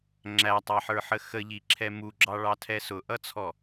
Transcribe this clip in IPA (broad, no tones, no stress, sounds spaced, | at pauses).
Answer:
ŋ͡ǁ æ tˤ ɑ ħ ə˞ ħ ə x ə ʎ i ǁʰ ɛ m u ɡ͡ǁ ɑ ɭ ɑ tʰ ɛ s ʊ ʔ ʌ t͡sʰ ɔ